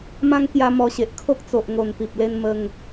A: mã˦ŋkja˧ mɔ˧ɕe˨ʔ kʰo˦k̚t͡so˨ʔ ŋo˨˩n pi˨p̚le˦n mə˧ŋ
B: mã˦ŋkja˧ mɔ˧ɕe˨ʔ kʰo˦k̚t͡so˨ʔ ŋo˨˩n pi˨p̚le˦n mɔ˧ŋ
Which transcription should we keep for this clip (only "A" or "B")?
A